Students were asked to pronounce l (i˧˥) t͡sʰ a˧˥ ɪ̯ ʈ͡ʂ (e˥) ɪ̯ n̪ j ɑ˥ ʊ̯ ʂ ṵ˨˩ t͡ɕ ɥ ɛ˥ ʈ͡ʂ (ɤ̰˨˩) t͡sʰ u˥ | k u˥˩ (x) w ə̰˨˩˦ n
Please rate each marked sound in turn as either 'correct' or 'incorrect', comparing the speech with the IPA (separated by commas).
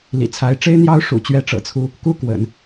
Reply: incorrect, correct, correct, incorrect